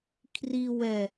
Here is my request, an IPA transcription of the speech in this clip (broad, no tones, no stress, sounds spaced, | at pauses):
kʰ r i w ɛ